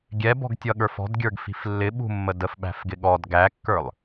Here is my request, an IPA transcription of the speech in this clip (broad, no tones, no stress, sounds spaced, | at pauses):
ɡʲ ɛ b ɔ̤ ɡ tʲ ʌ ɠ ə˞ f ɔ̤ d ɡʲ ə˞ ɡ f i̤ f lː ɪ ɓ ṳ mː ə d ə f ɓ æ̤ f ɡ ɪ ɠ ɔ d ɡ æ kː ə˞ lˠ